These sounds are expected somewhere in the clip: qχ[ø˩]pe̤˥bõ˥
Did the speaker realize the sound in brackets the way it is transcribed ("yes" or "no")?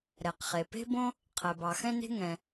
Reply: no